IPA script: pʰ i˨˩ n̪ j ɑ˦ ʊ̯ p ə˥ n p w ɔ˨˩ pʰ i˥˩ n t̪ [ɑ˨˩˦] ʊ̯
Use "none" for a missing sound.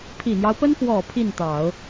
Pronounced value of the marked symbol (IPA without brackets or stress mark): ɑ˨˩˦